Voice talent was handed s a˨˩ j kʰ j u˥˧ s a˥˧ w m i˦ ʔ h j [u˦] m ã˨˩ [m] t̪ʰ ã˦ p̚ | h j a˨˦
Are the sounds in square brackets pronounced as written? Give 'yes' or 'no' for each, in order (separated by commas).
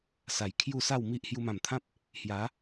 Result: no, yes